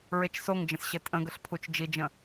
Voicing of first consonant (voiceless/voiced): voiced